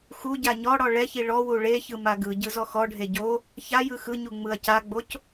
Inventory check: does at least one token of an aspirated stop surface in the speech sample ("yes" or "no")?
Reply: no